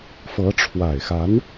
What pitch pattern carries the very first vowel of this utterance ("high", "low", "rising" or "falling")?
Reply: rising